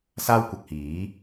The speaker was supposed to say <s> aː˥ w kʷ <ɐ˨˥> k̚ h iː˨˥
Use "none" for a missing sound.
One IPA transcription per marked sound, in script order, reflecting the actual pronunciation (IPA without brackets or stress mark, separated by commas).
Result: s, ɐ˨